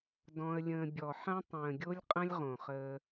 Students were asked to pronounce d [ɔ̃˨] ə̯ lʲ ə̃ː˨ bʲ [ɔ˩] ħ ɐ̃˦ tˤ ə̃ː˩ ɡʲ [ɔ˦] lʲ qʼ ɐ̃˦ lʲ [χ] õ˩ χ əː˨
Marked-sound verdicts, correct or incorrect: correct, correct, incorrect, incorrect

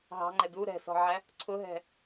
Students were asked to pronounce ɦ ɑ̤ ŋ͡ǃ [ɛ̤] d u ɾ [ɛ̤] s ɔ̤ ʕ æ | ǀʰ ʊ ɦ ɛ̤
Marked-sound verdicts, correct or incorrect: incorrect, correct

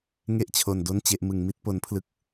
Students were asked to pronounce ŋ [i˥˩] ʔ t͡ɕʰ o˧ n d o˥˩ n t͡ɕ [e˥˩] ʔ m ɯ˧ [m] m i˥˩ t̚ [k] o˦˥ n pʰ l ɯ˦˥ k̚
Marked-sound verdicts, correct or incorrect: incorrect, correct, incorrect, incorrect

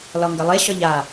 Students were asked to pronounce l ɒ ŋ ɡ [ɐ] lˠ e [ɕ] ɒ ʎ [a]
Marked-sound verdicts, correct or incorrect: correct, correct, correct

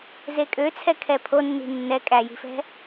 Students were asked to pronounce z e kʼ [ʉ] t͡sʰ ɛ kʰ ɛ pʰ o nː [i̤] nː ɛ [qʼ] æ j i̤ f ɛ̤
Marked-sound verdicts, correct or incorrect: incorrect, correct, incorrect

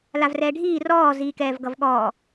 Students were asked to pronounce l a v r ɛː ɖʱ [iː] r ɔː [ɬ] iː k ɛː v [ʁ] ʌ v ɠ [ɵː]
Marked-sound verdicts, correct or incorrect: correct, incorrect, incorrect, incorrect

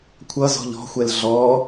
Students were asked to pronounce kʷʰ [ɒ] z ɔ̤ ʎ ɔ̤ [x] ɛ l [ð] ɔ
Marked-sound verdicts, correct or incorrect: incorrect, incorrect, incorrect

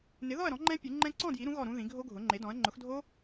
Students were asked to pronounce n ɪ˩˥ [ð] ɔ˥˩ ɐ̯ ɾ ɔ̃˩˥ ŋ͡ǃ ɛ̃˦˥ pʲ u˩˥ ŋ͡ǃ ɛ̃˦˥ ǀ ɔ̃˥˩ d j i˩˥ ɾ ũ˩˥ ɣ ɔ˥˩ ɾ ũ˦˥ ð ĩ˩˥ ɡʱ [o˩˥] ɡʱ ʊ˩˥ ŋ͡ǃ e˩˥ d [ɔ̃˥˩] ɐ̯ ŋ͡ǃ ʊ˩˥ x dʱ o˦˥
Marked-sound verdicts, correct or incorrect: correct, incorrect, incorrect

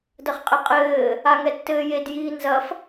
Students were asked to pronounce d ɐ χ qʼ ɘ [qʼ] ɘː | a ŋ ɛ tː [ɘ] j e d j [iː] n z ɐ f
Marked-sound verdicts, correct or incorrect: correct, incorrect, correct

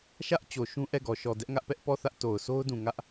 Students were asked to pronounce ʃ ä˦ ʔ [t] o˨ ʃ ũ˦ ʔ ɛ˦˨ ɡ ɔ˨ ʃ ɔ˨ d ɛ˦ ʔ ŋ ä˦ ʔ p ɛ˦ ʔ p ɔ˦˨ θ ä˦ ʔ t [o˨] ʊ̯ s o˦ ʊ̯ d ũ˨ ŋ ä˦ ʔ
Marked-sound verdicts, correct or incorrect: incorrect, correct

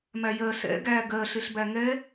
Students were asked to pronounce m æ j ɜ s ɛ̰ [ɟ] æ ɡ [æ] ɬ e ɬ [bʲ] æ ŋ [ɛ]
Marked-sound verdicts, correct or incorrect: incorrect, incorrect, incorrect, correct

